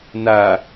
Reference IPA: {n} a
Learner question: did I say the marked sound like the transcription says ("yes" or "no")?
yes